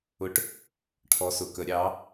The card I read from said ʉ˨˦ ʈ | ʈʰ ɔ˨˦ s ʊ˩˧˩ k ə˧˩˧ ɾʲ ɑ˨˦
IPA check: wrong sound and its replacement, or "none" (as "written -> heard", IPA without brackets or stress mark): ʉ˨˦ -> ʊ˨˦